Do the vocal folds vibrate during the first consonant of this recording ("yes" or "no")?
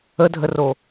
yes